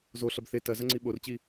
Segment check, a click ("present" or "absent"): present